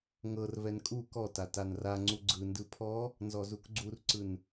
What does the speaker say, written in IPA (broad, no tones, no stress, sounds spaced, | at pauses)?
ŋ ɤ r v ɛ n kʼ u k ɔ t a t a n r a ŋ͡ǀ u ɡ͡ǀ ɯ n d ɯ pʰ ɔ | n z ɔ z u k ɡ͡ǀ u r ǀ ɯ n